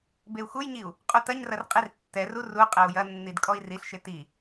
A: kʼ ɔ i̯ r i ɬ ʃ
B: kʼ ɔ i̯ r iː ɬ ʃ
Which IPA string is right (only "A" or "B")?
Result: A